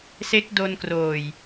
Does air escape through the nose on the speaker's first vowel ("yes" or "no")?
no